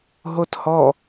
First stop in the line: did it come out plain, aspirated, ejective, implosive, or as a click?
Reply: plain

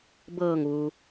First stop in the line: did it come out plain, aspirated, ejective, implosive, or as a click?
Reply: plain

